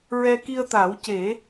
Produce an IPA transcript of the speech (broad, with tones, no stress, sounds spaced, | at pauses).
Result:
ɹ ɛ˧ k i˧ ə̯ t̪ a˨˩˦ w c e˨˩˦